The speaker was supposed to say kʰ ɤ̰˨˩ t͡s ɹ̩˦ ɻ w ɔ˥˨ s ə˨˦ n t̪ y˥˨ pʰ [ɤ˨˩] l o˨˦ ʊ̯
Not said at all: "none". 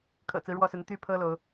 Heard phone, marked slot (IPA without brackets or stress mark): ɤ˦